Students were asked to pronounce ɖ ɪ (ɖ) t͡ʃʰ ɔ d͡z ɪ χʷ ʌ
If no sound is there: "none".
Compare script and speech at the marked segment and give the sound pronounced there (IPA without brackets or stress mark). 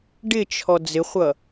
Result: none